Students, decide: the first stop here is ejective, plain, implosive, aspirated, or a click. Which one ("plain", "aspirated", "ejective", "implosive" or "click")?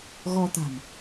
plain